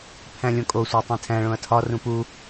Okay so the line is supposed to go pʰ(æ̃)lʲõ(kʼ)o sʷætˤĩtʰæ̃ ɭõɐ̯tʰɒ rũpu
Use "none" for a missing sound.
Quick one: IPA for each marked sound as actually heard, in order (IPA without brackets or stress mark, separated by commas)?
æ̃, kʼ